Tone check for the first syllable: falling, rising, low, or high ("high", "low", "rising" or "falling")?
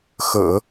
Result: low